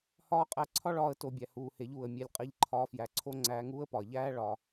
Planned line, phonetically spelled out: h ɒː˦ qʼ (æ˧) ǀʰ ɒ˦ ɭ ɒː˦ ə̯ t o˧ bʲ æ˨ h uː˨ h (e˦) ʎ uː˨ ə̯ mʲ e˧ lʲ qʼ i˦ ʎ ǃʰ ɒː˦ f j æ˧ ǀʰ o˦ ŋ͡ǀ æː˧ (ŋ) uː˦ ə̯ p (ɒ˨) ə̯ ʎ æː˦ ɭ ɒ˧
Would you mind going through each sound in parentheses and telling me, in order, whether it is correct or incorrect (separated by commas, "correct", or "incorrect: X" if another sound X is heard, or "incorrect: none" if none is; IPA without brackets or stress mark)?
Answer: correct, incorrect: e˨˦, correct, correct